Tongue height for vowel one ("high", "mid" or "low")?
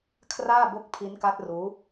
low